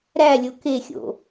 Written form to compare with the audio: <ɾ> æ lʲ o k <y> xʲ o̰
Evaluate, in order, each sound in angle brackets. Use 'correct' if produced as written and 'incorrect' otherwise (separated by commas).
correct, incorrect